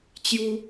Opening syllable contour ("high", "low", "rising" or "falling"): high